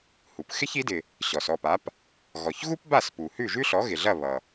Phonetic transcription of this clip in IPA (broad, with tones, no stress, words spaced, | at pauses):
hu˩p xɪ˥çi˩˥dɪ˩ | ɕɔ˩s ɔ˥˩pa˩˥p | ɣɔ˩çɣu˥pba˥˩s pu˩hʉ˥˩ʒʉ˥ɬɔ˩˥ ɣɪ˩ɮɐ˥˩ βʌ˩